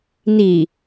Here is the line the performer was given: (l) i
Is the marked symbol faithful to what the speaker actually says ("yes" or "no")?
no